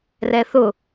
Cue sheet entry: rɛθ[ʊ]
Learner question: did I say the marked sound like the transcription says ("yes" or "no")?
yes